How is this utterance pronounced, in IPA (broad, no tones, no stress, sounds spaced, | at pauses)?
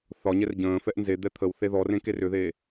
θ ɒ ɲ ɛ r ɟ ə̃ː f ɛ ʔ n z e d̪ ɛ t̪ʰ ə w θ e ð ɔ r ẽ k e r ʏ ð eː